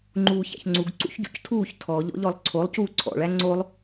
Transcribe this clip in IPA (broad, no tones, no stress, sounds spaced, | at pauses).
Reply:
ŋ͡ǃ uː ç æ̰ ç ŋ͡ǀ u ɡ ǀ ṵ ç ɟ ṵ c tʰ uː ç tʰ ɔ ʎ ɔ̰ ʎ ɔ lˠ ǀʰ o lˠ c uː ǀʰ ɔ̰ ɭ æ ŋ͡ǀ o lˠ